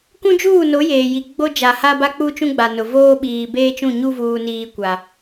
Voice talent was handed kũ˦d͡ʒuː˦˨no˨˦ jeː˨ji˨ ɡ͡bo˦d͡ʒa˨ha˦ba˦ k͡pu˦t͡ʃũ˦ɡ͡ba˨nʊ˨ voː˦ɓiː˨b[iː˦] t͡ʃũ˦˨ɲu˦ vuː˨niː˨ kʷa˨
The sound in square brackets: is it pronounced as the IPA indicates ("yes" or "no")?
no